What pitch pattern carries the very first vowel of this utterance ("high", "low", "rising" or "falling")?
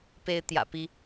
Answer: high